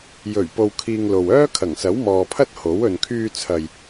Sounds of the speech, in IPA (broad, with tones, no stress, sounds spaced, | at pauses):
j ɵ˨˩ ɥ p o˧ w kʰ iː˧ ŋ l o˨ w œː˥ kʰ ɐ˨˩ ŋ s ɐ˨˥ w m ɔː˨ pʰ ɐ˥ t̚ h o˨˥ w ɵ˨ n kʰ yː˧ t͡sʰ ɐ˨ j